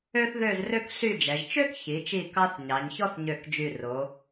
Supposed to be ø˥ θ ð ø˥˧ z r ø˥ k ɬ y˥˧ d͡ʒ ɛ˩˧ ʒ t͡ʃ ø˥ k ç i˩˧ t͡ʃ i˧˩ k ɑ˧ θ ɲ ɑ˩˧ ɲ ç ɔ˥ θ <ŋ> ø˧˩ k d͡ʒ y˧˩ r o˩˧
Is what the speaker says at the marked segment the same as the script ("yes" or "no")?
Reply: no